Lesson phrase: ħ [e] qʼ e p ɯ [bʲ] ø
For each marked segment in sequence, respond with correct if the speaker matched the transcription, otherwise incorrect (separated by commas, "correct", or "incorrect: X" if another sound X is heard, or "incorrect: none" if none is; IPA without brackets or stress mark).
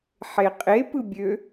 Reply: correct, correct